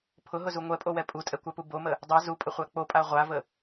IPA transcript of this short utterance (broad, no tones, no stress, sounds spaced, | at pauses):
pʰ ʊ ɦ ʊ z u ŋʷ ɛ pʼ o w ɛ pʼ u tʼ ɛ kʷ a p u b o m ə | dˤ ɛ z u pʼ ə χʷ a k͡p o pʼ a ʁʷ a v ə